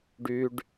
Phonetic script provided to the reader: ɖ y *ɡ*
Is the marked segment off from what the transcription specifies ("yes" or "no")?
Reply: yes